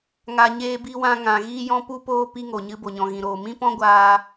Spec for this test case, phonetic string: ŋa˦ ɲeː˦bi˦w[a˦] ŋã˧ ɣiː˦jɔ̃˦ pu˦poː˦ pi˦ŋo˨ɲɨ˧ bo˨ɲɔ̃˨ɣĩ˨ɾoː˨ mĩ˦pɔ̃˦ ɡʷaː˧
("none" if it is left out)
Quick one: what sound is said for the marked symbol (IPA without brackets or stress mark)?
ã˦